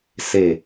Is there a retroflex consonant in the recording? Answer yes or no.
no